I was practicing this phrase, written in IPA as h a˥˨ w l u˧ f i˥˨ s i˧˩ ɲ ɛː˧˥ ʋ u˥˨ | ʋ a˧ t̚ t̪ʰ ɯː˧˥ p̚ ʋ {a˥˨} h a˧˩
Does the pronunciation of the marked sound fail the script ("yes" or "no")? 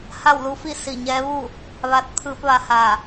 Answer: yes